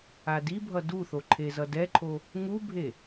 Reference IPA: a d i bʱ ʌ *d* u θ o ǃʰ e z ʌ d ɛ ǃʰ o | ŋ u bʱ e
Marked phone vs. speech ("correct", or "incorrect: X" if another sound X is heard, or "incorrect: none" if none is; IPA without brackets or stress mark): correct